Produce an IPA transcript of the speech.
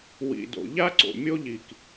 w ḭ˨ d o̰˨ ʎ a˦ ǀ o̰˨ mʲ o˦ ʎ i˨ k

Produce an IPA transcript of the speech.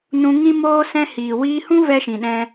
n ũ˧ ŋ ĩ˦ m oː˦ s ɛ̃˧ h iː˨ w iː˧ h ũ˦ v ɛ˦ ʃ ĩ˨ ɗ ɛ̃˧

